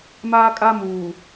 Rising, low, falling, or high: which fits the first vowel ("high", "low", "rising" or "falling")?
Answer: high